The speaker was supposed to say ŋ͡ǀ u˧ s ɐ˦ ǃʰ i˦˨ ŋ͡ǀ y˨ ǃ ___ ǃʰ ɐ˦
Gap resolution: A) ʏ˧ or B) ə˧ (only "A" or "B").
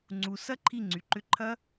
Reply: A